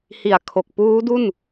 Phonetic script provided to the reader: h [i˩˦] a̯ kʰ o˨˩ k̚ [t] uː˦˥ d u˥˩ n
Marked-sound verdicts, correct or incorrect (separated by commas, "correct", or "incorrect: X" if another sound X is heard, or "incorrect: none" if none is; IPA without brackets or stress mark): incorrect: i˨˩, incorrect: p